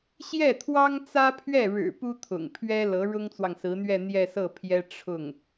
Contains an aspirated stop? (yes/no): yes